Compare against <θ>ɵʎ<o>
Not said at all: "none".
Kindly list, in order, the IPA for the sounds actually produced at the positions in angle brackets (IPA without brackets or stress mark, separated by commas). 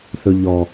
θ, ɔ